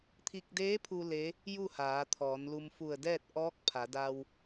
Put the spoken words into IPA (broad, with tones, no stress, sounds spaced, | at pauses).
t̪ʰ i˧ k̚ d eː˧˥ pʰ u˧ l e˧˥ | j u˥˨ h aː˩˧ t̪ʰ ɔː˩˧ n l u˧ m f u˧˩ ə̯ d ɛː˥˨ t̚ ʔ ɔː˧˥ k̚ pʰ a˩˧ d a˧ w